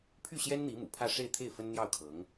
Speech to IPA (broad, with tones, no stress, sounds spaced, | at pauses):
pʰ y˥˩ ɕ j ɛ˥ n n̪ i˧˥ m ṵ˨˩ pʰ ä˥˧ ʂ e˥˧ ɪ̯ t̪ʰ e˥˩ ɪ̯ f ə˥ n n̪ j ɑ˥˩ ʊ̯ kʰ ɤ˧˥ ŋ